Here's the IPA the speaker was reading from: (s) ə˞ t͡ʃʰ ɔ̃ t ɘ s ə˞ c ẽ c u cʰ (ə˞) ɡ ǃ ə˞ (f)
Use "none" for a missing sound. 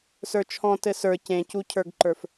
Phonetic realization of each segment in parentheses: s, ə˞, f

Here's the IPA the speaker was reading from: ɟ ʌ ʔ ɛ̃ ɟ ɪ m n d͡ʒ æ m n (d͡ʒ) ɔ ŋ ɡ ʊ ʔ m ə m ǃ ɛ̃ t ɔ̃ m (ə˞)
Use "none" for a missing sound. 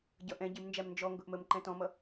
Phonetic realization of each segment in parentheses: d͡ʒ, ʌ

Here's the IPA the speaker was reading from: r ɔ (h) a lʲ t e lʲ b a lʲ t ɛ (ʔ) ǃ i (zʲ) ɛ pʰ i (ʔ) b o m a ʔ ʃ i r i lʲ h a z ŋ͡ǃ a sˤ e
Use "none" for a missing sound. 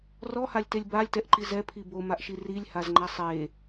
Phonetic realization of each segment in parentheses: h, ʔ, z, none

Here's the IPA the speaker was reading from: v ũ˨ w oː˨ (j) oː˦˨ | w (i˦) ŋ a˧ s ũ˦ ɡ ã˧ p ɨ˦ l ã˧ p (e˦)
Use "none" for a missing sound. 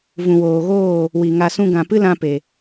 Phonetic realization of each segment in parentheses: ɣ, i˨, e˨

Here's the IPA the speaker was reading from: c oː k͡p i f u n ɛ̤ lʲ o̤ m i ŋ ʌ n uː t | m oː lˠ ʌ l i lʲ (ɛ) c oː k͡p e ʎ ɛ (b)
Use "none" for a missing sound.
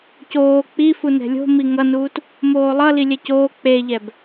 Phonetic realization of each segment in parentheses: ɛ, b

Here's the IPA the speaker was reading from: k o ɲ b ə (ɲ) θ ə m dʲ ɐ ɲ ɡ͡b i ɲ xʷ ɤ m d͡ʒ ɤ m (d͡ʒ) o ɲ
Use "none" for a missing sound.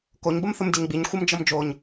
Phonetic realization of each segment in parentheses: m, d͡ʒ

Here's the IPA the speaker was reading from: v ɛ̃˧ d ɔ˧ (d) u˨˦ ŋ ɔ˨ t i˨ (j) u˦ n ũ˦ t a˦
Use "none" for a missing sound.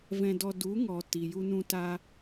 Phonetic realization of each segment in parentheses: d, j

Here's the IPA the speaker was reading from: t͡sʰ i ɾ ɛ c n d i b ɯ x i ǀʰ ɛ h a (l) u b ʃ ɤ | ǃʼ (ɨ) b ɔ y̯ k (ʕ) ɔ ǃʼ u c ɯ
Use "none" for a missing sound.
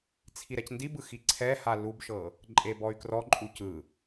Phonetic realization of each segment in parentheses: l, e, r

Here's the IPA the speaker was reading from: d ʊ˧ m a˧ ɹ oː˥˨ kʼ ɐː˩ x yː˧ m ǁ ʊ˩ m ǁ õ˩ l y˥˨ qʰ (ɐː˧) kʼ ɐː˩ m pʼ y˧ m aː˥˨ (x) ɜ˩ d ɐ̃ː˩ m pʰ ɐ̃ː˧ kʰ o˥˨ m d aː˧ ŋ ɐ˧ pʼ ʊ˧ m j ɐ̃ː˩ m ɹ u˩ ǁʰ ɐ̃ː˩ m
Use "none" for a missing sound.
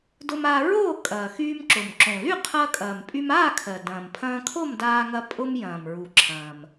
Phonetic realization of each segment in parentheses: ɐː˧, kʰ

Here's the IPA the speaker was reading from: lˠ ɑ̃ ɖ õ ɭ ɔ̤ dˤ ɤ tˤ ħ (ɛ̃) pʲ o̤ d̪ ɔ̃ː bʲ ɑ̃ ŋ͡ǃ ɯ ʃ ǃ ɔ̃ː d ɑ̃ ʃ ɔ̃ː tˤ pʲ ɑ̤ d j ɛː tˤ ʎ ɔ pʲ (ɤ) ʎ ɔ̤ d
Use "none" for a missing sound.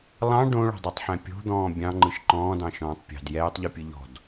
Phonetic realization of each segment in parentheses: ɛ̃, ɯ

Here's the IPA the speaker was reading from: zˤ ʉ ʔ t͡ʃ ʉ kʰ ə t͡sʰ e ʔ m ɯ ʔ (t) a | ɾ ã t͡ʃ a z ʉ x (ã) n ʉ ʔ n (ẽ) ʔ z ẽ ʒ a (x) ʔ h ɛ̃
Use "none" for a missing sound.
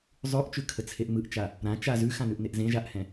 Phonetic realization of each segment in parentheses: t͡ʃ, ã, e, none

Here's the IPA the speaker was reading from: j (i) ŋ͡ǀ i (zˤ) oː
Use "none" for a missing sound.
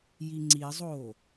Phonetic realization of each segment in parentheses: i, zˤ

